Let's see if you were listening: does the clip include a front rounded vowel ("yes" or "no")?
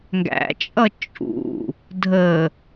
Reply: no